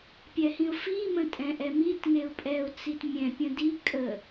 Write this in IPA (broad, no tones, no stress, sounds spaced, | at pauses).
pʲ ɛ h ĩ ʊ̯ f i m ə̃ tʼ ɛ̃ ʔ ɛ m i t ŋ e ʊ̯ pʼ ɛ ʊ̯ t͡s i t mʲ ɛ̃ pʲ ə̃ d i kʼ ə